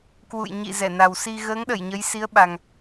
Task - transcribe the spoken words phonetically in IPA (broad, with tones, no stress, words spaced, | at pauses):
kwṵ˧˨jɲḭ˧˨ zɛ˧˩na˨˩w si˧ ɣəː˨˦ŋɗə˧˩j ɲə˨˦jsi˨˦ə̯ɓa˨˩ŋ